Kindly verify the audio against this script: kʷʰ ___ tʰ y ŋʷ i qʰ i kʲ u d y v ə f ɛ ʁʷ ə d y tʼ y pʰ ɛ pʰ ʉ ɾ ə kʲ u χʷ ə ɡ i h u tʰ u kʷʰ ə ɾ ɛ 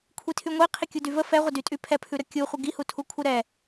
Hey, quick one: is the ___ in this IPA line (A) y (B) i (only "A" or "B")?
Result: B